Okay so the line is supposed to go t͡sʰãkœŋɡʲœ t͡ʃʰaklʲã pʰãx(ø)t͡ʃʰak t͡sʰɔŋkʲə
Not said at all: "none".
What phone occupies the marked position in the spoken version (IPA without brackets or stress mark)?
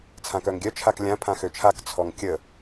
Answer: ø